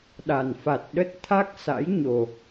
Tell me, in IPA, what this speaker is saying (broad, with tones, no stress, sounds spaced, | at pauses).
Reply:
ɗ a˨˩ n f a˨˩ t̚ ɗ ə˦˥ t̚ t̪ʰ a˦˥ k̚ s a̰˧˥ j ɲ o˨˩